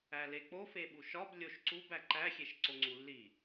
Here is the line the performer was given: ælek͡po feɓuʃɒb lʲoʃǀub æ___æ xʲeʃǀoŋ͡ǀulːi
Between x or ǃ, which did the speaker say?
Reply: ǃ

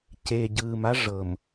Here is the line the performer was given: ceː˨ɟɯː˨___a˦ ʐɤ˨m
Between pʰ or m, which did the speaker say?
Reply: m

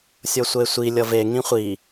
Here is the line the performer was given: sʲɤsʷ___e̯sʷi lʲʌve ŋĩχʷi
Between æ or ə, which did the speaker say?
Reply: ə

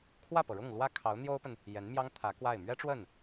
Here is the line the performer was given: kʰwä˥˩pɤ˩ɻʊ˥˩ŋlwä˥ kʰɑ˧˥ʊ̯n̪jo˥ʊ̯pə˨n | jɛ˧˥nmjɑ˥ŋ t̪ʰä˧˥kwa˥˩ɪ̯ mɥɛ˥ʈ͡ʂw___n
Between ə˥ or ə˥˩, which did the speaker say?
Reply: ə˥˩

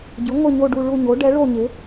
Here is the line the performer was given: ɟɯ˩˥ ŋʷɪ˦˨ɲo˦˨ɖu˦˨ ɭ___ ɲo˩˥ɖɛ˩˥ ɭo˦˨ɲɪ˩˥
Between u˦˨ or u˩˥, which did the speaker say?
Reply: u˦˨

